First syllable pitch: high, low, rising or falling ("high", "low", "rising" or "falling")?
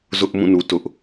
high